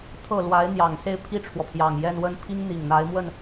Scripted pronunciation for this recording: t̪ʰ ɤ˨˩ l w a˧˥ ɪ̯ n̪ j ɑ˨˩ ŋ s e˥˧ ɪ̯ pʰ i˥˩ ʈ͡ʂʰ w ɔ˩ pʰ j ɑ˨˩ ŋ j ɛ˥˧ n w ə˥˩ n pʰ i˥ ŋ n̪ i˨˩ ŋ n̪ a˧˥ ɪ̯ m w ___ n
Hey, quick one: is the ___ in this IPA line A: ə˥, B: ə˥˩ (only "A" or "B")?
B